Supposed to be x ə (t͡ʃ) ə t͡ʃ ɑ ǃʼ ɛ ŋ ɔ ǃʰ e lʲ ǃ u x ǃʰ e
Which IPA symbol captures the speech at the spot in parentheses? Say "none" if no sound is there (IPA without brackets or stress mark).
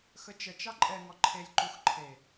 t͡ʃ